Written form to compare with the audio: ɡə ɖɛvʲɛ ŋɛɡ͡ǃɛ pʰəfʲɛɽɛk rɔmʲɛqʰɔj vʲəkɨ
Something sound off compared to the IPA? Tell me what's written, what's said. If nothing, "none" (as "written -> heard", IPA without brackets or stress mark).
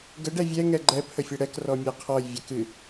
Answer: none